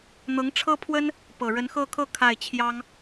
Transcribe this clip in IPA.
n̪ ɤ˧˥ ŋ ʈ͡ʂʰ ɤ˥ pʰ w ə˥ n | p ɤ˨˩ ɻ ə˧˥ n x ɤ˥˧ kʰ ɤ˥˧ kʰ a˥˩ ɪ̯ t͡ɕʰ j ɑ˥ ŋ

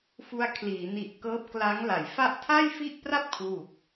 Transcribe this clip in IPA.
f u˧ a̯ kʰ l iː˩˦ n i˨˩ ʔ k ɤː˦˥ p̚ k l a˦˥ ŋ l a˩˦ j f a˥˩ ʔ tʰ a˥˩ j f i˥˩ ʔ p r a˥˩ p̚ kʰ w u˨˩ k̚

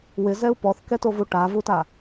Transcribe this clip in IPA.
w ɪ z ɛ u̯ p ɔ θ k ɛ t o v u ʈ a v u t a

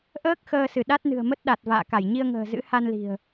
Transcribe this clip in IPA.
ʔ əː˦˥ k̚ x əː˧ s ɨ˧˩ ɗ a˦˥ t̚ n ɨ̤˨˩ ə̯ m ə˦˥ t̚ ɗ a˨˩ t̚ v a̰ː˧˨ k a˧˩ j ɲ i˧ ə̯ ŋ ə̤ː˨˩ z ɨ̰˧˥ h a˧ n l i̤˨˩ ə̯

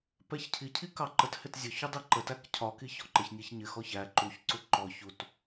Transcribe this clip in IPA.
p ɛ ç cʰ i cʰ i k ɑ ǃ ə t h ɪ t zʲ ʊ ç u dˤ i ǃ ə t æ k cʰ ɒ k i ç ɔ ǃ ɪ ç nʲ ɛ ç ɲ ɪ x ɔ ç æ ǃ u ç ǀ u ǃ ɔ ç u t

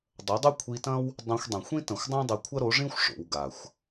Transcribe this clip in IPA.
dˤ ɐ˨˦ dˤ ʉ˦ kʷʰ i˧ t ɐ̃˦ w | dˤ õ˧ xʷ dˤ ĩ˨ xʷ ĩ˦ t ɐ̃˨ xʷ dˤ ũ˦ dˤ ɨ˧ kʷʰ ɐ˦ ɾ o˨˦ ʐ ĩ˦ xʷ ʂ o̰˨ w ɡ a˨ xʷ

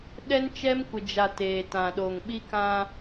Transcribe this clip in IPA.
ɗ ɛ˦ n t͡ʃ ɛ˦ m kʷ ɪ˨ d͡ʒ a˨ t eː˨ t ã˨ ɗ o˨ ŋ ɓ i˦ k ã˦

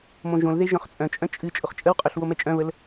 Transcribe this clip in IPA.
m õ ʒ õ l ð e ʒ œ̃ χ t͡sʼ œ̃ t͡ʃʼ œ̃ t͡ʃʼ ɨ t͡ʃʼ ʊ χ t͡ʃʼ ə w qʼ œ ɬ w o m ɛ t͡ʃʼ œ̃ β ə l

